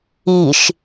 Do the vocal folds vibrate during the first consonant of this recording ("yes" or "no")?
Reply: no